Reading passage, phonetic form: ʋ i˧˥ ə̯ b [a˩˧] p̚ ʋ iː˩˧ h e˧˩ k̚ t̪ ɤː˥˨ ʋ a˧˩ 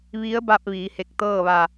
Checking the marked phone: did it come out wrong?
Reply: yes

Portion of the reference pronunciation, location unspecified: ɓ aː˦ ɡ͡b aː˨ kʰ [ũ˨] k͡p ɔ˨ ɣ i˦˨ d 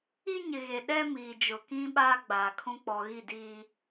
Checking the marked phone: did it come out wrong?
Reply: yes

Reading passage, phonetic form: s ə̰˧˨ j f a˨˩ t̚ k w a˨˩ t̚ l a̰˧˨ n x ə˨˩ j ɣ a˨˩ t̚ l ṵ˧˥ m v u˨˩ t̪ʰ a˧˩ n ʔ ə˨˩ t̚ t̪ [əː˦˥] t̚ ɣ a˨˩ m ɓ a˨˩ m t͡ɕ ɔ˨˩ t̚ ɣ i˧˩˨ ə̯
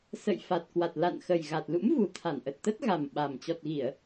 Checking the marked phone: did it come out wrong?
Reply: yes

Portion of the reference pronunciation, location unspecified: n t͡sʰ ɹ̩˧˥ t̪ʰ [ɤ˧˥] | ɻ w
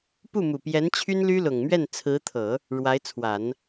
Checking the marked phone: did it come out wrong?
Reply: yes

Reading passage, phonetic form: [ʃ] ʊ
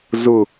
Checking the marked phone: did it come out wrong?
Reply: yes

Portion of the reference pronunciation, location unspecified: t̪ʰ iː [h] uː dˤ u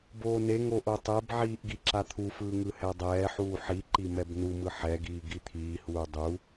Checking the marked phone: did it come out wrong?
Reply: no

